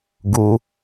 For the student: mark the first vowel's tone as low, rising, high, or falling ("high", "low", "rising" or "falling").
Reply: high